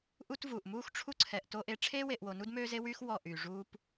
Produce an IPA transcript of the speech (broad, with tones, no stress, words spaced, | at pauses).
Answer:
ʔu˦tvuː˨ʔ muː˦xʈ͡ʂʰu˦ǀʰɛ˨ʔ to˦ʔe˦ ʈ͡ʂʰeː˦we˨ʔwo˨ nu˦dmøː˦ze˦wyː˦x wɔ˦˨ʔyː˨ ʐuː˦p